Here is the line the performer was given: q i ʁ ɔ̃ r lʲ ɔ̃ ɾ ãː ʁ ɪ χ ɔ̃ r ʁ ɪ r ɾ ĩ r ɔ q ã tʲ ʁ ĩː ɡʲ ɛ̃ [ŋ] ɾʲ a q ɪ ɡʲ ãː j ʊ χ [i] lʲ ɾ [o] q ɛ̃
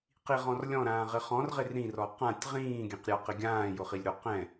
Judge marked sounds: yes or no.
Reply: no, yes, yes

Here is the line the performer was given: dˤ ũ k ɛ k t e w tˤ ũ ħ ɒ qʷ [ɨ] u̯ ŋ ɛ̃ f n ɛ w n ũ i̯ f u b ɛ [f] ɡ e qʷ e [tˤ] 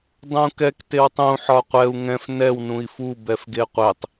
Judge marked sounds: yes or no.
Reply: no, yes, yes

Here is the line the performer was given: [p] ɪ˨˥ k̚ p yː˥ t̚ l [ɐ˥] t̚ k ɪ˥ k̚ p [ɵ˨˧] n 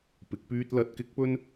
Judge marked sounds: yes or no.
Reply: yes, no, no

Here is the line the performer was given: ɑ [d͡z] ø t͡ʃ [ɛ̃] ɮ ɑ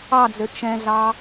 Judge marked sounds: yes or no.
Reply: yes, yes

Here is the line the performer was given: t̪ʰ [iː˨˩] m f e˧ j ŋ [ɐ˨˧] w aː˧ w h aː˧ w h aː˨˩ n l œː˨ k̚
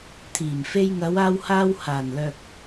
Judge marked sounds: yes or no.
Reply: yes, yes

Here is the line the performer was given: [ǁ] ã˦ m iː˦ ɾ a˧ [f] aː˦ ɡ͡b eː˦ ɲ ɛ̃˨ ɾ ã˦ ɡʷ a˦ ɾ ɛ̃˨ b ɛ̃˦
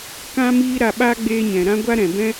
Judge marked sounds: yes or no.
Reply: no, no

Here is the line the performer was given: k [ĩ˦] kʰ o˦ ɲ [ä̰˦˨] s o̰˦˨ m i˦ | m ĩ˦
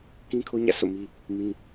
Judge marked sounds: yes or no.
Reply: yes, yes

